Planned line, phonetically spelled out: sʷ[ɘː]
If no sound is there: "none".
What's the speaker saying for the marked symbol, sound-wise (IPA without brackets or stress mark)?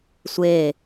eː